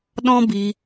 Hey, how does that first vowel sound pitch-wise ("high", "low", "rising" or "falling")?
high